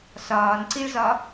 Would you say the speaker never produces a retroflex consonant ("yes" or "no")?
no